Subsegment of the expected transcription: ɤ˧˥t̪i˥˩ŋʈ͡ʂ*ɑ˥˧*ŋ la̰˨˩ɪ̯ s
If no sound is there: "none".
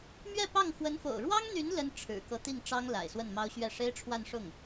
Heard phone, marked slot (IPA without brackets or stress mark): ɑ˥